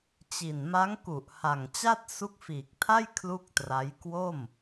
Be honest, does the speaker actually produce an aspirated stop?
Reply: yes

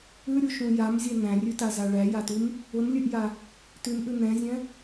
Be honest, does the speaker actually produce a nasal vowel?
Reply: yes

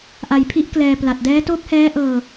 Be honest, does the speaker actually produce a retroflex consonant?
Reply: no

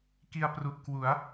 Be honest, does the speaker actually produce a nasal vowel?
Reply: no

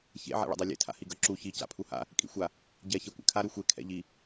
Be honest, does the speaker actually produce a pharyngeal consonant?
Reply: yes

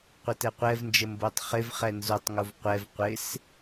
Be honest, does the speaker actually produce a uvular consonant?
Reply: yes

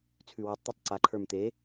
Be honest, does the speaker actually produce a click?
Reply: yes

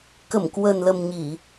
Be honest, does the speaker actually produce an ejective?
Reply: no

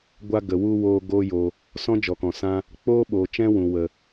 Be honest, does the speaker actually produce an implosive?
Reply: yes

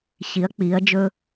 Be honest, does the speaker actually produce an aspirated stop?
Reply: no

